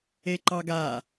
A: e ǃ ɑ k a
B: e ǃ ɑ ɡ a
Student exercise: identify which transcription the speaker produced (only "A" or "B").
B